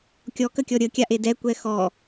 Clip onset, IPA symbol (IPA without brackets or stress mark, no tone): kʲ